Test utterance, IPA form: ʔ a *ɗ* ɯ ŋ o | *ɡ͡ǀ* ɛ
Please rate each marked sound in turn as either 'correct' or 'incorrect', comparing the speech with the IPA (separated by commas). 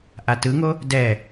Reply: incorrect, incorrect